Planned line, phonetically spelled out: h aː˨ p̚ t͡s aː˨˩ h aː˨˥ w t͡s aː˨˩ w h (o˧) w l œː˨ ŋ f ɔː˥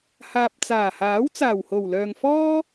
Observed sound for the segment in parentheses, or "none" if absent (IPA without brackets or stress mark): o˨˩